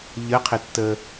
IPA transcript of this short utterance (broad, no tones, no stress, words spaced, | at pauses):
ʎəqʰɪtːə